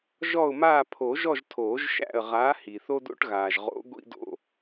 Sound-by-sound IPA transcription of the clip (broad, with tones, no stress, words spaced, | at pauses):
ʒɔ˦˨ʊ̯ maː˦˨pʰo˨˩˦ʒɔ˦˨ʒ tʰoː˨˩˦ʒʃæ̰˦˨ə̯ ʁaː˨˥hi˩θo˦do̰˦ʈ ɣaː˩ʒ ʁo̰˨˥ ɡʷḭ˦do̰˦˨